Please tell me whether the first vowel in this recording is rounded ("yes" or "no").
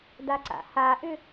no